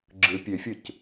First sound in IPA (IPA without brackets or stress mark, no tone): ɡ͡ǁ